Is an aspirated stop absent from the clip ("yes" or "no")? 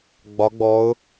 yes